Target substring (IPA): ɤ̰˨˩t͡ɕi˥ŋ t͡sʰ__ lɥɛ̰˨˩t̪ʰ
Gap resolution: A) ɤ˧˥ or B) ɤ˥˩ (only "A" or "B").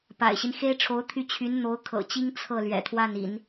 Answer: B